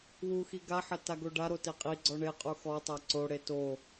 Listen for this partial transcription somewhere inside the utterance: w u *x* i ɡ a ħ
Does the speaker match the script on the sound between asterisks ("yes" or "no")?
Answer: yes